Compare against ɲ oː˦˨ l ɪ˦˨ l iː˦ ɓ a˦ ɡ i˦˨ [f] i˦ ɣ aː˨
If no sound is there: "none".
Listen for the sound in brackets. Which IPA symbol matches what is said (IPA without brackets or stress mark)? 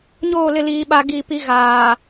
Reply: p